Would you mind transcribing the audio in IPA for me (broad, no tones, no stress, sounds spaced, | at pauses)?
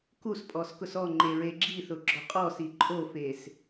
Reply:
k u s pʼ ɔ s k ʊ s ɔ ŋ͡ǃ e ɹ e ɡ͡ǁ i θ ʊ ɡ͡ǁ ɔ qʼ ɔ s i ǃʼ o f e s